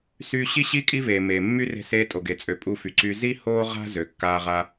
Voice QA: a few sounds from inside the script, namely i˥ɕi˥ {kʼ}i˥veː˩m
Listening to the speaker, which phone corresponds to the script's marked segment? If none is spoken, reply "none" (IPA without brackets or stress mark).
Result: kʼ